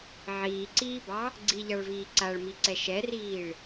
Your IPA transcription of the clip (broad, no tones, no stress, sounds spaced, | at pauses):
ʕ iː ǀ iː b ɑ | ɡ͡ǀ i ʎ ɑ ɭ v iː ǀ a ɭ m i ǀ ɛ ʃ ɛ r iː ɭ